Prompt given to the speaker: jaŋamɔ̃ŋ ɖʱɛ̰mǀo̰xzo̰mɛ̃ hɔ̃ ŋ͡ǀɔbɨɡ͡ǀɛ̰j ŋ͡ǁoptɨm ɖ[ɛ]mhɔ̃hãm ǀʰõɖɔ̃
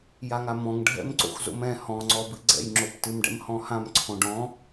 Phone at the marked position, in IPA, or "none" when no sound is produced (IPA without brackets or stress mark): ɛ̰